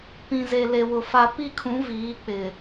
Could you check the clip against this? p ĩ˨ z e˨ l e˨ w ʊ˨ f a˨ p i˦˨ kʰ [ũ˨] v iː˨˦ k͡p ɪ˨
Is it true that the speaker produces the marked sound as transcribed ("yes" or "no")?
no